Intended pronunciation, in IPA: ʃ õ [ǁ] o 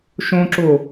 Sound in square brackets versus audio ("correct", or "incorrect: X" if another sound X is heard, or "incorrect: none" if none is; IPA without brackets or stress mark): correct